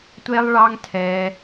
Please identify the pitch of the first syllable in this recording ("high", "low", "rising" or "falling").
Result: high